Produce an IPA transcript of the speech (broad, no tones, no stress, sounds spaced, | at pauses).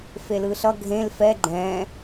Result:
f e l ɯ ɬ ʌ ɡʱ ẽ l f ɛ ɡ͡ǃ ɛ̃